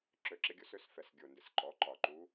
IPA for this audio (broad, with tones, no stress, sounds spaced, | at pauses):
ǁ ø˨˩˦ ǁ ɪ˧˥ ɡʲ o˧˥ s ø˩˥ s f ɛ˨˩ s ɡʲ o˨˩ n d ɪ˨˩ s ǃ ɔ˩˥ ǃ ɒ˨˩ ǃ u˧˥